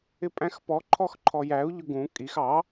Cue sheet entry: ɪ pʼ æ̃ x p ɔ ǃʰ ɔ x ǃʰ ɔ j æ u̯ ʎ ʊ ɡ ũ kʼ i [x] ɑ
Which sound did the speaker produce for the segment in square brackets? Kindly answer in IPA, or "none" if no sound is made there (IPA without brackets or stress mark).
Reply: x